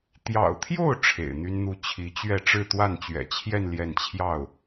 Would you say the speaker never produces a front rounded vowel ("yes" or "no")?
no